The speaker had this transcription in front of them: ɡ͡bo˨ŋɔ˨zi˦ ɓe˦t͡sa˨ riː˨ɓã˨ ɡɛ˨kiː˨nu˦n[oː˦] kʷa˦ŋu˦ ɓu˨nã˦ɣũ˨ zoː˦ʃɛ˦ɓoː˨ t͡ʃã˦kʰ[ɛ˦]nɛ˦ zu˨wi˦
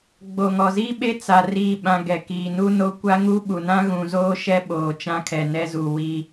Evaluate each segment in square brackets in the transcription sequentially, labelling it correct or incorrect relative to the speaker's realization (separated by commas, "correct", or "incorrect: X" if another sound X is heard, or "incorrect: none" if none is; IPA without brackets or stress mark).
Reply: incorrect: o˦, incorrect: ɛ˨